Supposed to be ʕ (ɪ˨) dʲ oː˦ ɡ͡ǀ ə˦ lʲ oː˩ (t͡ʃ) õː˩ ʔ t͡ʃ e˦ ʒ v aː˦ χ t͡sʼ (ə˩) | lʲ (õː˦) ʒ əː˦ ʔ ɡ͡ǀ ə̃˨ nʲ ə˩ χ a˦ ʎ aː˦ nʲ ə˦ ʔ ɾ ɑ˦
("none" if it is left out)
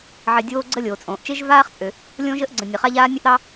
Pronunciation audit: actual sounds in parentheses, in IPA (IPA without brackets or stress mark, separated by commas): ɪ˨, t͡sʼ, ø˩, õː˦